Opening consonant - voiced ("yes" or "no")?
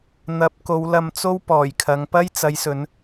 yes